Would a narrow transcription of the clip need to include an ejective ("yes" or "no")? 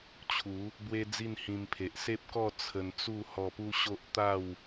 no